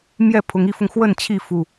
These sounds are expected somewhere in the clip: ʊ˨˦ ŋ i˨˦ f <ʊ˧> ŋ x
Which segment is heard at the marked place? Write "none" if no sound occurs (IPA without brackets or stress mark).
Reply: ʊ˧